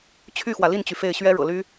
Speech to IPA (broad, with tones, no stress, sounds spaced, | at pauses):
t͡ɕʰ y˥˩ x w ä˩ l i˥˩ n t͡ɕ y˩ f e˥˩ ɪ̯ ɕ ɥ ɛ˥ ɻ ɤ̰˨˩ l y˥